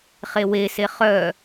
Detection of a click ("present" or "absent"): absent